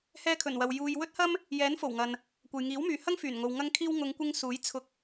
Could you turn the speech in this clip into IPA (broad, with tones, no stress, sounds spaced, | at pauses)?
h ɛː˧ kʰ ɵ˨˩ n w ɐ˨ w j uː˧ j w ɵ˥ t̚ h ɐ˥ m | j ɛː˨˥ n f o˨˩ w ŋ ɐ˨ n | kʷ ɐ˨ j ŋ iː˨˥ w m yː˨ h ɐ˥ ŋ f yː˨˩ n ŋ o˨ w ŋ ɐ˥ ŋ kʰ iː˥ w ŋ ʊ˨˧ ŋ kʷ ɪ˧ ŋ s uː˨˥ j t͡sʰ ʊ˧ k̚